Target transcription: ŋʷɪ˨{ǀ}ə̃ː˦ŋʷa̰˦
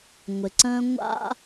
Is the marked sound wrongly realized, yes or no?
no